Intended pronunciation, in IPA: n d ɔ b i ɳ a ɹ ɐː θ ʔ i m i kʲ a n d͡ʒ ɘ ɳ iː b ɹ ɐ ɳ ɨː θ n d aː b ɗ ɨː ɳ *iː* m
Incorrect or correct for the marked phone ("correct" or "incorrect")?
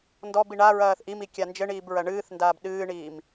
correct